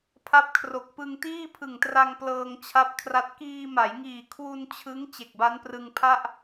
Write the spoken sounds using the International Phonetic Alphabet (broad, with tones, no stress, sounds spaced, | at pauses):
pʰ a˦˥ p̚ kʰ r o˨˩ k̚ p ɯ˧ ŋ t iː˥˩ pʰ ɯ˨˩ ŋ t r a˧ ŋ p l ɤː˧ ŋ t͡ɕʰ a˦˥ p̚ kʰ r a˦˥ t̚ k iː˧ m a˩˦ j ŋ iː˨˩ kʰ w u˧ n t͡ɕʰ ɯ˦˥ ŋ t͡ɕ e˨˩ k̚ b a˦˥ n p r ɯ˧ ŋ pʰ a˥˩ ʔ